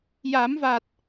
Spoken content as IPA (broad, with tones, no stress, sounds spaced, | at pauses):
j a˨˩˦ m v a˨˩ t̚